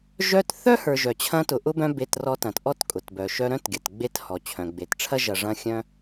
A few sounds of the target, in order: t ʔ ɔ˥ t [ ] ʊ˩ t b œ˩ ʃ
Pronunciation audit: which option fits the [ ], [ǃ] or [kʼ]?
kʼ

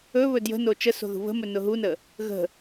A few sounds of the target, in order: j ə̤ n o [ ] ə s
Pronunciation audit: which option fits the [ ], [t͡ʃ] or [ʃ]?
t͡ʃ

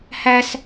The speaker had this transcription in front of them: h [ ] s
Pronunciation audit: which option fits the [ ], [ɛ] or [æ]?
æ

